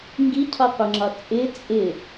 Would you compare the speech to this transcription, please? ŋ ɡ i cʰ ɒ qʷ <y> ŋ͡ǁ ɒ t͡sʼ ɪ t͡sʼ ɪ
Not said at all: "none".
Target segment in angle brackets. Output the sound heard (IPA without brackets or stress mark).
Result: ɪ